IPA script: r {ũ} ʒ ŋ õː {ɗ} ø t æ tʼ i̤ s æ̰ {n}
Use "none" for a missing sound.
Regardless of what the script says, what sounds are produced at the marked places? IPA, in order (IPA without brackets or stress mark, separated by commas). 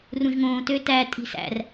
ũ, t, r